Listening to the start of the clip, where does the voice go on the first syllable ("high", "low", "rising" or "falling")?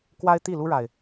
high